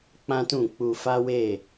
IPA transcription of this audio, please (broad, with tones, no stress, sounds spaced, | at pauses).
k͡p ã˦ t ũ˦˨ k͡p u˧ f a˦ w e˦˨